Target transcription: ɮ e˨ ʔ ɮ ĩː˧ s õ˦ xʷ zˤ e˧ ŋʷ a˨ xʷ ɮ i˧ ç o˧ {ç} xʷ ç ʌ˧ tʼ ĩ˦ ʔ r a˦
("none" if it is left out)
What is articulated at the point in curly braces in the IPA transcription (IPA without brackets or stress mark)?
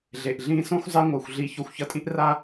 none